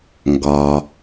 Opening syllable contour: low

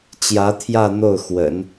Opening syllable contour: rising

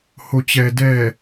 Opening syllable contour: low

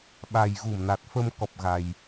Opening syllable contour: low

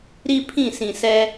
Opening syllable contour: high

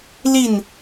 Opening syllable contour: falling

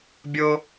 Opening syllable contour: high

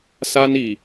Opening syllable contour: high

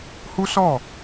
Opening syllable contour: high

